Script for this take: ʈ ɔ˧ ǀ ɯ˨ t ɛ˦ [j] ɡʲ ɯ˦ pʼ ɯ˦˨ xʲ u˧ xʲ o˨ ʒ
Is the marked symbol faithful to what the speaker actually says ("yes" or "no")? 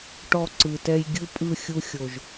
yes